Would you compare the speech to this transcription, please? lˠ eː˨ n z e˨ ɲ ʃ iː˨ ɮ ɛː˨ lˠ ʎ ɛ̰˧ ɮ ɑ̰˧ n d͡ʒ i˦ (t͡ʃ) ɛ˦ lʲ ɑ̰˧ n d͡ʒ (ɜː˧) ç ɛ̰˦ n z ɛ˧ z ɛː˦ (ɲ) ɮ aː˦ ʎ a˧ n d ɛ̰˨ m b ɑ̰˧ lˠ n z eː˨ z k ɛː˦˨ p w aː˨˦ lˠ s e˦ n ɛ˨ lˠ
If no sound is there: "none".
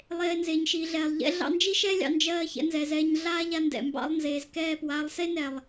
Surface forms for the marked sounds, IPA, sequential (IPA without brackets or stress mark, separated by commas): ʃ, ɜː˧, ɲ